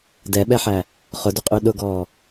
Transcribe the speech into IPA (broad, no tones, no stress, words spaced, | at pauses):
dɛɓɛħæ | χʊdʏqʼy ɗʊɡɔː